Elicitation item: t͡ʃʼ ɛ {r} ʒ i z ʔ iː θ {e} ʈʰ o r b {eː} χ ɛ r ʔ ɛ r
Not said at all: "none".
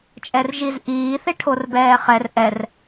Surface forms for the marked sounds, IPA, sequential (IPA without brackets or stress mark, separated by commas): r, e, ɛː